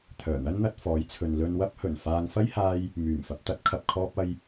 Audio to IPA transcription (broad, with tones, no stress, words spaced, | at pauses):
t̪ʰœː˨˩n̪ɐ˥nn̪ɐ˧t̚ fɔː˨˧jt͡sʰɵ˨n lɵ˧nwɐ˥p̚hɵ˨˩n faː˧ŋ fɐ˥jhaː˧j | myː˨˩mfɐ˨p̚t̪ɐ˥t̚ kʰɐ˨p̚kʰɔː˧p̚ɐ˧j